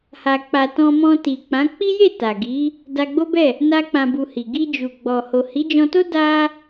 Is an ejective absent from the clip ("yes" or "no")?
yes